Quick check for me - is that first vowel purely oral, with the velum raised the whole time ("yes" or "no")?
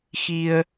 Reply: yes